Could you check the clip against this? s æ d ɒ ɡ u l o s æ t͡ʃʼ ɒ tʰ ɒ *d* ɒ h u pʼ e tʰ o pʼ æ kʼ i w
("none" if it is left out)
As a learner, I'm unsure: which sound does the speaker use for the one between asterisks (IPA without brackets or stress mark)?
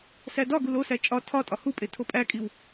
tʼ